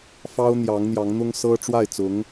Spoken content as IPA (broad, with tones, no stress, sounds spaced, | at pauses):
f ɑ˥ ʊ̯ n̪ j ɑ˧˥ ŋ n̪ j ɑ˧˥ ŋ n̪ ʊ˥ ŋ s ɤ˥ ʈ͡ʂ w a˥˩ ɪ̯ t͡s ʊ˧˥ ŋ